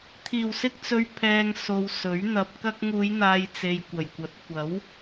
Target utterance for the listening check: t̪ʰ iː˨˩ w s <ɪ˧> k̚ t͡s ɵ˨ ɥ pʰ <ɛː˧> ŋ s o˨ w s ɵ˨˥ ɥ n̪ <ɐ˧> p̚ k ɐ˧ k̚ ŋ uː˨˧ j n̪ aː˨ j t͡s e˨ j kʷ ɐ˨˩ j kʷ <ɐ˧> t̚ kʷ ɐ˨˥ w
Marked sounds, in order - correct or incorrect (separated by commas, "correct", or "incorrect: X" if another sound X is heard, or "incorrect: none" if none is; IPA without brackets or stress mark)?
correct, incorrect: ɛː˨, correct, incorrect: ɐ˨˥